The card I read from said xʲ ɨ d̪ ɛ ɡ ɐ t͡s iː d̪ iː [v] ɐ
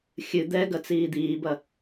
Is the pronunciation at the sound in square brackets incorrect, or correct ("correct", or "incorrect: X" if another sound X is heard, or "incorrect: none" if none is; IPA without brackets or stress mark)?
incorrect: b